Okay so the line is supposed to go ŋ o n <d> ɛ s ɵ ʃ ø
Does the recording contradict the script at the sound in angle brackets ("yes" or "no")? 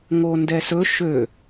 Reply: no